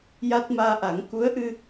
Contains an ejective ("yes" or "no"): no